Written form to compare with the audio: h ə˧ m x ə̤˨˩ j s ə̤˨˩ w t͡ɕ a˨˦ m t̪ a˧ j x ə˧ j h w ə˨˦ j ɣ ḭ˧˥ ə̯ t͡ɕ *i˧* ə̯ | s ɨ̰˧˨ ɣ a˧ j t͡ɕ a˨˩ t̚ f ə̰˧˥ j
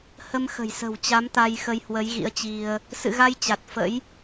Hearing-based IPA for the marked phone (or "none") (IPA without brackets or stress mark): i˧